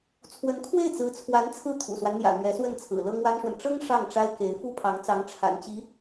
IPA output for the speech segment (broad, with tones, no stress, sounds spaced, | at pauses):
t͡sʰ w ə˧˥ n kʰ w e˥˩ ɪ̯ t͡s ɹ̩˧˥ t͡sʰ w a˧˥ n t͡sʰ ɹ̩˥˩ t̪ʰ ṵ˨˩ s w a˦ n n̪ j ä̰˨˩ n̪ ɥ ɛ˧˥ s w ə˥˩ n t͡sʰ ɹ̩˨˩ l ɤ˥ ŋ w a˥ n ʂ w ə˨ n ʈ͡ʂ ɤ˥ ŋ ʂ ɑ˥˩ ŋ ʈ͡ʂ a˥ ɪ̯ k e˧˥ ɪ̯ f u˥ pʰ ɑ˧˥ ŋ t͡s ɑ˧˥ ŋ ʈ͡ʂʰ a̰˨˩ n t͡ɕ i˧˥